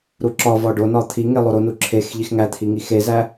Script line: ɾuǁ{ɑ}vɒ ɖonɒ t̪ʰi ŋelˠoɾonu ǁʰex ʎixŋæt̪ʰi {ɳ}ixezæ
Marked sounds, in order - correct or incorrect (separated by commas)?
incorrect, incorrect